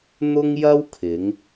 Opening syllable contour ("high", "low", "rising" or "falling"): high